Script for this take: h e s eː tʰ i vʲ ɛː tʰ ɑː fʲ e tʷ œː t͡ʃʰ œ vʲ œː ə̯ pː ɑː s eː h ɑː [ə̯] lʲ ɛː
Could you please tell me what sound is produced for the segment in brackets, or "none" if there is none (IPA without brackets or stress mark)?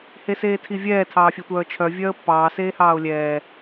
ʊ̯